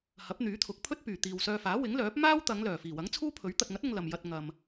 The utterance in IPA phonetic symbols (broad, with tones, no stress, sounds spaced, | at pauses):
h ɐ˨˥ p̚ n̪ yː˨˥ t̪ʰ ʊ˨˥ k̚ pʰ ɵ˥ t̚ p yː˨˩ t̪ iː˨ w s œː˧ f aː˨˥ w ɪ˨˥ ŋ l œː˨˥ p̚ m aː˥ w t̪ ɐ˨˧ ŋ l œː˨˩ f iː˨˩ w ɐ˨˥ ŋ t͡sʰ uː˥ pʰ ɵ˨˥ ɥ t̪ ɐ˨ t̚ ŋ ɐ˨˥ t̚ ʊ˧ ŋ l ɐ˨ m j ɐ˧ t̚ ŋ ɐ˨ m